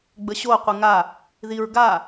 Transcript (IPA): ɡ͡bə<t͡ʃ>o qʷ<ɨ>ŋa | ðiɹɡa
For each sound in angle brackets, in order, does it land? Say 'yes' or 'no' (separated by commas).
no, yes